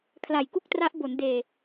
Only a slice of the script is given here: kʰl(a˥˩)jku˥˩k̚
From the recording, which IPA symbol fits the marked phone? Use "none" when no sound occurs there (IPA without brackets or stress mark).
a˨˩